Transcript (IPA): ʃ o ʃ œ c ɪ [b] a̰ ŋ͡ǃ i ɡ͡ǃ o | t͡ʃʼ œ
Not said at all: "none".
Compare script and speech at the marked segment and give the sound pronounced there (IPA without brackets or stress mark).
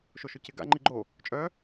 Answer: ɡ